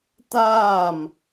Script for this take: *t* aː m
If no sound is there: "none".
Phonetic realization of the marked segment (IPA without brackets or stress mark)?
t